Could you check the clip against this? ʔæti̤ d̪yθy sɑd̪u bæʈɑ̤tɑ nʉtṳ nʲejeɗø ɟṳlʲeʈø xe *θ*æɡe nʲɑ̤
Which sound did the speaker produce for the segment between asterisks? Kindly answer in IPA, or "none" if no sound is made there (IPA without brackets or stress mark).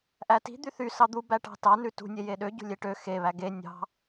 β